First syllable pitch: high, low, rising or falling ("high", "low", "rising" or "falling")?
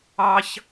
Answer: high